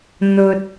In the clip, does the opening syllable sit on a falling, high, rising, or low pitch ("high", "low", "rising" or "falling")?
low